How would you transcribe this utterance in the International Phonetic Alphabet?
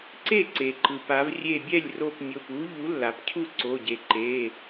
ǀ e˥˩ ǀ e˩ ǃ ɯ˩ p a˩˧ v rʲ e˧˩ bʲ ɛ˥˩ lʲ r o˧˩ p mʲ o˩˧˩ p u˨˥ ʎ u˨˥ lː a˩˧ p cʰ u˥˩ ǀ o˩˧˩ ɟ e˩˧ ǃ e˩˧˩

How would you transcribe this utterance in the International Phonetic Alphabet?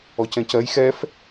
ɔ c ɛ̃ c ɜ j x ɛ f

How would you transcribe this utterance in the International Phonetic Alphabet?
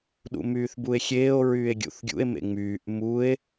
ɗ ṵ m yː θ b u e̯ xʲ eː o̯ ɹ yː e̯ ɡʲ ṵ θ ɡʲ ṵ e̯ m ḛ ŋ͡m yː ʔ m u e̯

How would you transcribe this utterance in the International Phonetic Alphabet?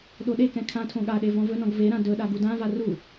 ɗ o ɗ e k ɛ̃ kʰ ã tʰ õ ɠ a ɗ e v ɔ̃ v ɵ n ɔ̃ ɡ v e ɾ ã d ɵ ɗ a ɡ u d ã v a r u

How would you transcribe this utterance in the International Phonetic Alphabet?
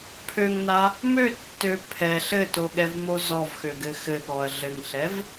pʰ ø ŋ n a | m ø tː ø pʰ ɛ ɬ ɘ t o ɠ ɛ v m o z ɔ v x ø ɡ ɘ x ɘ ɠ ɔ ɐ̯ ɮ ɘ ŋ ɬ ɛ v

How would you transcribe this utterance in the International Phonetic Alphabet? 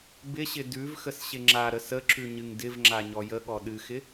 b ɪ ɕ ɪ d ʉ v x ə s ɕ ɪ ŋ͡ǁ a ɾ ə s ə ǁ ʉ ɲ ɨ ŋ d ɪ v ŋ͡ǁ a ɲ ɔ j ə ɠ ɔ ɗ ɨ x ɪ

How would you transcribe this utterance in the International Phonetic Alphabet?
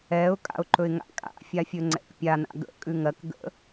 ɛ ʊ̯ kʼ a̰ ʊ̯ ǃ ɵ ɪ̯ ŋ a̰ kʼ a̰ fʲ a fʲ ɵ ŋ͡ǀ ɛ̰ k pʲ a n a̰ ɡ ə̰ kʼ ʉ ŋ ɜ k ɡ ə̰

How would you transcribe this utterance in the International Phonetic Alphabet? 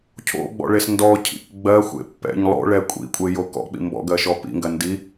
cʰ o̰ ɡ͡b ɔ̰ ɭ e s n d ɔ cʰ ḭ k ɡ͡b ɜ xʷ ḛ pː ɛ̰ ɲ lˠ o̰ ɭ ɛ kʷʼ ḭ kʷʼ e j o k ɔ̰ k͡p ḭ m b ɔ̰ ɡ ɜ ʃ ɔ p ḭ ŋ ɡ ɜ n d i

